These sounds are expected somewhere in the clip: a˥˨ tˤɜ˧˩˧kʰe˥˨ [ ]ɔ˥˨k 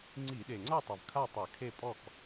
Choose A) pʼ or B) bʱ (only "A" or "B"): A